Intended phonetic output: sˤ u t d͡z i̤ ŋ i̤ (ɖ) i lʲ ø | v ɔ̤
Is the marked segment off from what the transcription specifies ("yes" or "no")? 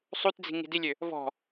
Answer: yes